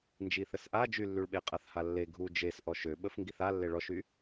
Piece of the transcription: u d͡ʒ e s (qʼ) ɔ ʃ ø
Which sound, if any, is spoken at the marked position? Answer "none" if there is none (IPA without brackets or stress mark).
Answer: ʔ